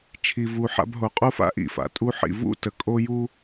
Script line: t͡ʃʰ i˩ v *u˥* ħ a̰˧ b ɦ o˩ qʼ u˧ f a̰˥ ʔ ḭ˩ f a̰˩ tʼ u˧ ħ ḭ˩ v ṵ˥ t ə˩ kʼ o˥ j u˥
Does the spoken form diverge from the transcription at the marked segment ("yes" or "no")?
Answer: yes